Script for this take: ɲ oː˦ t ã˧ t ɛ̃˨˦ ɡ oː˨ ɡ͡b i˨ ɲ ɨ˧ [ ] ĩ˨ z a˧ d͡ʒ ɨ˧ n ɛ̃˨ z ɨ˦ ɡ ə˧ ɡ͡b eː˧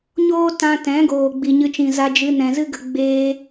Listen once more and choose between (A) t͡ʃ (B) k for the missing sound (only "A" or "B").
A